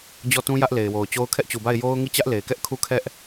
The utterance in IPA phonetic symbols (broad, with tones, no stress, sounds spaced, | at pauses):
d͡ʑ ɔ˦˨ t ũ˦ j ä˦ ʔ l e˨ ɪ̯ w o˨ ʊ̯ t͡ɕ o˦ ʊ̯ kʰ ɛ˦ ʔ t͡ɕ u˨ b a˦˨ ɪ̯ j o˦ ʊ̯ ŋ i˦˨ t͡ɕ ä˦ ʔ l e˨ ɪ̯ k ɛ˦ ʔ kʰ u˦˨ kʰ ɛ˦ ʔ